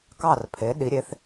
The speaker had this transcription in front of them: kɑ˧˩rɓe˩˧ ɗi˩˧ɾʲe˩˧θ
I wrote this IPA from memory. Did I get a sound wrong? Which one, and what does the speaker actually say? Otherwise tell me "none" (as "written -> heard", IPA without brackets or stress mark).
ɓ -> pʰ